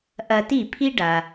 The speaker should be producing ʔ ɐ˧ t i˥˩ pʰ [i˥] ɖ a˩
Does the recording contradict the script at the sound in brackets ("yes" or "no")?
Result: no